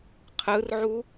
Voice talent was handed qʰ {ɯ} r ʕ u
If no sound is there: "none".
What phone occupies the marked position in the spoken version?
ɯ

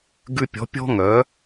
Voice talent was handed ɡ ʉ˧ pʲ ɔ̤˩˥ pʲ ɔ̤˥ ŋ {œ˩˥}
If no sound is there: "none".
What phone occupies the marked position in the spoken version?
œ˩˥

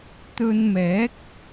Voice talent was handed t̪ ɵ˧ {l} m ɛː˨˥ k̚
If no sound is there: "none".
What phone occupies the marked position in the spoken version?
n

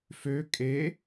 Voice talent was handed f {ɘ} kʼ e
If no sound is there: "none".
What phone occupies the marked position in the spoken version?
ø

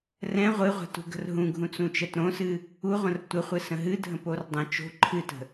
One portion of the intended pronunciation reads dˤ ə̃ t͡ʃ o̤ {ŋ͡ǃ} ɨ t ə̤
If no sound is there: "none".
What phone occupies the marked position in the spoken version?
ǃʰ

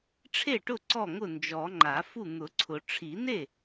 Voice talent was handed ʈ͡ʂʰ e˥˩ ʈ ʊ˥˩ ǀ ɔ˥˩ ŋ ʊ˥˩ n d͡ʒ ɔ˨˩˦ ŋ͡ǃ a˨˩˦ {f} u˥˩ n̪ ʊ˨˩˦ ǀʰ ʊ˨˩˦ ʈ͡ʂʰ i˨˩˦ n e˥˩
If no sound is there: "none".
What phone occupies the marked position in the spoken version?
f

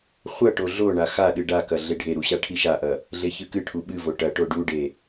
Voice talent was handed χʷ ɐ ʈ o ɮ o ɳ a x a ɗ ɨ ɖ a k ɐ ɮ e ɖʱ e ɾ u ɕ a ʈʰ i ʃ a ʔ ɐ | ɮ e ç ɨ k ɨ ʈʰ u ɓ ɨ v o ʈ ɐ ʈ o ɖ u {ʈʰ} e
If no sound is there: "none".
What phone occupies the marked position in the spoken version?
ɖ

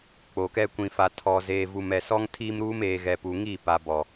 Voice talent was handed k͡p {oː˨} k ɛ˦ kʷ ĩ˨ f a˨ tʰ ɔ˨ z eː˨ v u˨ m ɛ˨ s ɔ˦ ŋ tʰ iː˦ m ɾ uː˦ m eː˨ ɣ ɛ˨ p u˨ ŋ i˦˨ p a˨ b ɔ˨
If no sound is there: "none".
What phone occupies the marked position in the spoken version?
o˨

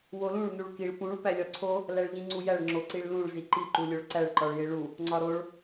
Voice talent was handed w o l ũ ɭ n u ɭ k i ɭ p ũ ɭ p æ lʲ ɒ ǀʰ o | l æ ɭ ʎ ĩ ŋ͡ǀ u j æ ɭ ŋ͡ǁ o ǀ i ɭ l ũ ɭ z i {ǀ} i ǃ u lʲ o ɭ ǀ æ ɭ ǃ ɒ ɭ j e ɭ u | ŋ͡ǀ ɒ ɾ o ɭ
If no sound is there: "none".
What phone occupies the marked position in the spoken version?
ǃ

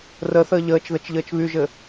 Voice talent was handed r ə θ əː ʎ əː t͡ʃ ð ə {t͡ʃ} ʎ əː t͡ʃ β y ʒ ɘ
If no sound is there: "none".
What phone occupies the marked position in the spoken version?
t͡ʃ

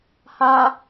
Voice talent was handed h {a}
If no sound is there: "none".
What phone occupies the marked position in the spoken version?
a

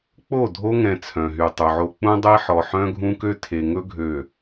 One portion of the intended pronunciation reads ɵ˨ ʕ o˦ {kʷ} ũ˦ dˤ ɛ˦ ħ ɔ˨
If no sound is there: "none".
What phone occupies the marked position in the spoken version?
k͡p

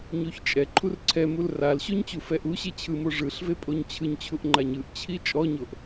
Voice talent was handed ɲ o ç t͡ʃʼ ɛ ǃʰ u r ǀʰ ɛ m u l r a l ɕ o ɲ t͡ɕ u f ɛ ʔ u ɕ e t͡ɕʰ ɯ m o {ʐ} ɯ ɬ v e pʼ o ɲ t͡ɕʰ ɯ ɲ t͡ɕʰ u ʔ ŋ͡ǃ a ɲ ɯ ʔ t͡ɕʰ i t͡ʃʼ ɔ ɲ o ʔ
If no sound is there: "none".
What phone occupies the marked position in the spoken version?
ʐ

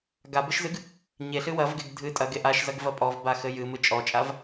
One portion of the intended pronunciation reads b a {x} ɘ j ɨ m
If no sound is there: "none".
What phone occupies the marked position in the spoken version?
x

